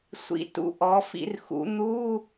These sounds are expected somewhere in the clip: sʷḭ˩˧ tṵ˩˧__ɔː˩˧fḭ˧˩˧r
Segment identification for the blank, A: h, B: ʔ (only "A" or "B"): B